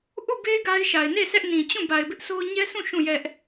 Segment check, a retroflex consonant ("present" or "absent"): absent